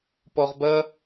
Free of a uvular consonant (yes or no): no